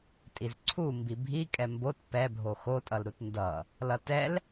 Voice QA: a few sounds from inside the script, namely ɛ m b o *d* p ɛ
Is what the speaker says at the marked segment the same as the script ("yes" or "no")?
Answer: no